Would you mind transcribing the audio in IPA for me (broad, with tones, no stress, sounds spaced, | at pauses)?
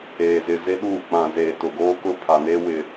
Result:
eː˨ z ɪ˨ z e˦ ɗ uː˦˨ k͡p ã˨ z eː˨ t ʊ˨ ɡ oː˦ k ʊ˦ pʰ a˨ n e˦ w ɪ˨